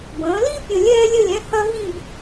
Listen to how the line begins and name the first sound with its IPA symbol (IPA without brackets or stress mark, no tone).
b